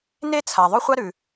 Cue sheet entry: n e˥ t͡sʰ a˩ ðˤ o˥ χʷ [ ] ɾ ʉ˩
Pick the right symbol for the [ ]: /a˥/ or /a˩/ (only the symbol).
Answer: a˥